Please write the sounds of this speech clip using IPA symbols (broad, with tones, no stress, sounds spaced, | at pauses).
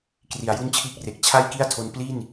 k r i˨˩ a̯ j u˥˩ n t͡ɕʰ iː˥˩ k̚ r e˨˩ k̚ t͡ɕʰ a˥˩ j k i˥˩ a̯ tʰ o˧ n p l i˥˩ n